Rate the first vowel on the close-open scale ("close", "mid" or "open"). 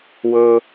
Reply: mid